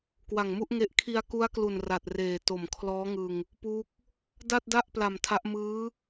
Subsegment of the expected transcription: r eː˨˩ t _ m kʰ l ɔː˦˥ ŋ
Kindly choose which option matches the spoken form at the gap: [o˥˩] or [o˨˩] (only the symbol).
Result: o˨˩